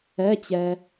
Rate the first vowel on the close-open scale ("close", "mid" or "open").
mid